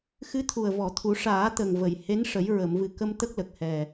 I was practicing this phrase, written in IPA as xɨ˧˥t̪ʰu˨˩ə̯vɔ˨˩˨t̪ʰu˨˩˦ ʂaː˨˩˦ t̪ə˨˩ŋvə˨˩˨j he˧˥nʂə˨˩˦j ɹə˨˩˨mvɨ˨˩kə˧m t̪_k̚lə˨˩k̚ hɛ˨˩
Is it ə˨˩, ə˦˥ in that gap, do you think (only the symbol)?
ə˦˥